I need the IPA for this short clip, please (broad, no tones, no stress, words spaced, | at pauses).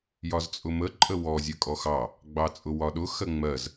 jɒzt͡sʼʊmə ǃʼəwɔ zʲɜkʼɔxɑ | ɡ͡bɑt͡sʼʊwɒɗʊ xɜŋ͡mɜz